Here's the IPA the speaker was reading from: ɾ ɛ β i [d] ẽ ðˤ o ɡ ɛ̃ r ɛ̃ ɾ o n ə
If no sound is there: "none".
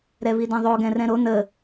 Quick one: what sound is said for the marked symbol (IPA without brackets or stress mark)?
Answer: d